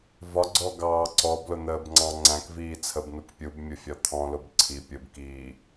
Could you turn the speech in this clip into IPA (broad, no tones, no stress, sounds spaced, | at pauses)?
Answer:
v ɒ ɡ͡ǀ ɔ ɡ ɑː ǀ ɔ b l ʊ n̪ əː b ŋ͡ǀ ɑ̃ ŋ͡ǀ æ̃ k v iː t͡sʰ ə b n u k pʲ u b mʲ ʊ fʲ ɒ t̪ʰ ɔ̃ l ʊ b ǀʰ i pʲ ʊ b k iː